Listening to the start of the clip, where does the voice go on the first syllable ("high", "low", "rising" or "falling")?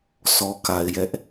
low